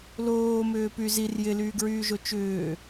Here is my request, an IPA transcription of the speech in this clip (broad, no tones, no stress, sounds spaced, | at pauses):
l oː m ʏː p y z i r j ɪ l yː ɡ ɹ yː ʒ o t͡ʃ ʏː